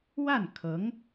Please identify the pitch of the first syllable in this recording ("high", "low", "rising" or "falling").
falling